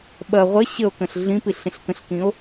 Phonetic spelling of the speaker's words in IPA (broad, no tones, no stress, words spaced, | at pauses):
ɓɐ ʁʷɐ ɕəo̯kə̃ɬ ɮĩpiɬ ĩɬkə̃ɬkĩo̯